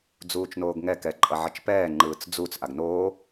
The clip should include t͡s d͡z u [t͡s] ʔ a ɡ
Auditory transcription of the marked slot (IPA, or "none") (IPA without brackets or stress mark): t͡s